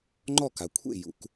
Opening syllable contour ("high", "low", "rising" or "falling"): falling